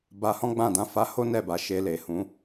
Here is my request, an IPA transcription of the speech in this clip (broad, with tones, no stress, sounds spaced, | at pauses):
b a˧ h ɔ̃˦ ɡ͡b ã˦˨ d ã˧ f a˧ h o˦ n ɛ˦˨ b a˨ ʃ e˧ l e˨ h ũ˨˦